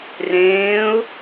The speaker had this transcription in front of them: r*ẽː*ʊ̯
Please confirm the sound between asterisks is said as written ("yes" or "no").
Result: yes